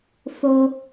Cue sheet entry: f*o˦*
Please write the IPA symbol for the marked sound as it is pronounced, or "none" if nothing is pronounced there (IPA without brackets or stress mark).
o˩